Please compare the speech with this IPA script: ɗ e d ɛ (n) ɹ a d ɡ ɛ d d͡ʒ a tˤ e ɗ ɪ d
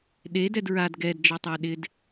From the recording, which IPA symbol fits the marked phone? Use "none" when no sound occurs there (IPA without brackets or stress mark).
d